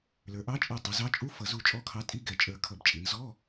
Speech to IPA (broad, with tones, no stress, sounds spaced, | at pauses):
l ə˞˩˧ ʔ ɑ˧˥ t͡ʃʼ ɛ˧˩ tˤ ʌ˩˧ z ɑ˧˥ t͡ʃʼ u˧˥˧ f ʌ˧˩˧ z u˧˩ t͡ʃʼ ɔ˧˥˧ kʰ ɑ˧˥ tʼ i˧˥˧ ɡ ɛ˧˩ t͡ʃʼ ə˞˧˩ kʰ ʌ˧˩˧ b t͡ʃʼ i˩˧ n z ɔ˧˥˧